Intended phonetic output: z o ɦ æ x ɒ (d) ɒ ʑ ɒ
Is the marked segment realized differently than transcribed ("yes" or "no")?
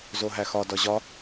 no